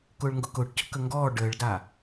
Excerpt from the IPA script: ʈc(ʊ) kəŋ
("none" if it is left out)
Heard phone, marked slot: ʊ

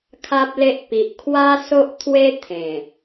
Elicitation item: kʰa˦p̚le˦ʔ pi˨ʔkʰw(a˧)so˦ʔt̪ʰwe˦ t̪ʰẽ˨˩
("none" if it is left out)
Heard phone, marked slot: a˦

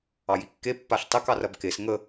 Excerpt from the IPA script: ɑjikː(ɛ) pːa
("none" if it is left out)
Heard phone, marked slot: e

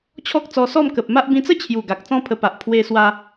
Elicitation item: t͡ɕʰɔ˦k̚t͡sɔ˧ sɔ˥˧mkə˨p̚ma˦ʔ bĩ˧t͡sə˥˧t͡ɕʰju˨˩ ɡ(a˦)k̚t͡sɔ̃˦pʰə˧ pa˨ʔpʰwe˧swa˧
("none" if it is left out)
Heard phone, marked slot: a˨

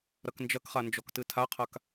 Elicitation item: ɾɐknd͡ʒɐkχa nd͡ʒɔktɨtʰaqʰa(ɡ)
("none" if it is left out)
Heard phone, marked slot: k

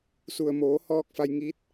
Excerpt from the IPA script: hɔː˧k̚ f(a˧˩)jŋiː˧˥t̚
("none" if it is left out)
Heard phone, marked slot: a˧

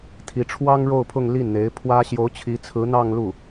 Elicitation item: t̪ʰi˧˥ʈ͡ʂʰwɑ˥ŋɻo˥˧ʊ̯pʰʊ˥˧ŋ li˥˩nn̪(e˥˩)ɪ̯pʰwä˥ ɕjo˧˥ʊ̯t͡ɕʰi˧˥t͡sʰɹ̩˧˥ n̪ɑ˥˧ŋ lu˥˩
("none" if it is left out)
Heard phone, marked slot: e˧˥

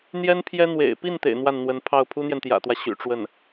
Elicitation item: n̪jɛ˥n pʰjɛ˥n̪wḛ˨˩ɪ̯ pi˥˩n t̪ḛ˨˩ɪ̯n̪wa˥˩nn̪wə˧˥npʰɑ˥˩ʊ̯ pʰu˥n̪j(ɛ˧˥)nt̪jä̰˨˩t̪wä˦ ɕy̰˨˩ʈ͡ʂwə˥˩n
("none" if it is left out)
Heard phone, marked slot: ɛ˨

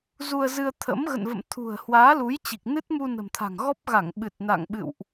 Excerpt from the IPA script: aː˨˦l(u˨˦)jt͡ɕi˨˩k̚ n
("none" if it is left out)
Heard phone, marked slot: u˨˦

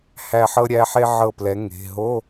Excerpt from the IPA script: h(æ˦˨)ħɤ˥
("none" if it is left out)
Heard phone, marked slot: æ˦˨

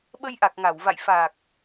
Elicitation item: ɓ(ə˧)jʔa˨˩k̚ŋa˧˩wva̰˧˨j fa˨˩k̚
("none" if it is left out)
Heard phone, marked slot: ə˧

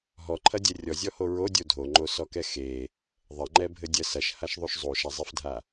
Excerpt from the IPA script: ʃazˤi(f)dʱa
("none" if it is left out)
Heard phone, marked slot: f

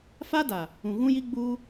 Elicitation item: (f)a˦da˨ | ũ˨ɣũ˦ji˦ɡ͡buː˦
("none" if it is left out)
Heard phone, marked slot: f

